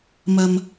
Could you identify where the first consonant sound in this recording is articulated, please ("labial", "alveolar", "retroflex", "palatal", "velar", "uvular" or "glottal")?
labial